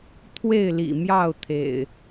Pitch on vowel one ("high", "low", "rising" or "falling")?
falling